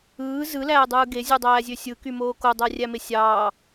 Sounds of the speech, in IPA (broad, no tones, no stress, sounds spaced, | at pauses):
ɯː z ɯ l æː dˤ ɯː ɡ e zʲ u dˤ æː zʲ ø sʲ ɯ k y m oː k o dˤ æ rʲ æ m e sʲ ɑː